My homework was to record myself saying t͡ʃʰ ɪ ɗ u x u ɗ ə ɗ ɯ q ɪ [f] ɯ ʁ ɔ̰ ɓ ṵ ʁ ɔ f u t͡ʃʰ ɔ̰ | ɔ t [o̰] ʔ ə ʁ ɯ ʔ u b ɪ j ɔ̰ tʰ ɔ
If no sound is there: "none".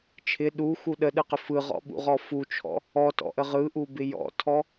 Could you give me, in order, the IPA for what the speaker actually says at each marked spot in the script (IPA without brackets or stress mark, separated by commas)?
f, ɔ̰